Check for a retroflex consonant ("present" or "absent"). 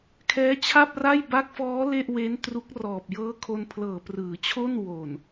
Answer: absent